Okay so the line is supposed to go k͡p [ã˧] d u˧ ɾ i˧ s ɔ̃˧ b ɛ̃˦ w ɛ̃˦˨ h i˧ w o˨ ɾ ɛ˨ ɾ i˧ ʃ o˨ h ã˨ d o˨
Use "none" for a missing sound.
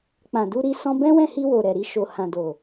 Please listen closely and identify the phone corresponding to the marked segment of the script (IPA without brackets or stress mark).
ã˨